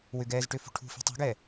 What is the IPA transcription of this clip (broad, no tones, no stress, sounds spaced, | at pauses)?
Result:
w ʏ ɡ ɛː z ʈ ʏ f ṳ ʈʰ ṳ f i̤ tˤ ṳ ɡ ɛː